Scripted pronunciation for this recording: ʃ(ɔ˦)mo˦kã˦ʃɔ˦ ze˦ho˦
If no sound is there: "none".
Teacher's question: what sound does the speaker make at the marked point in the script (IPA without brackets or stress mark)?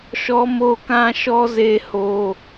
ɔ˦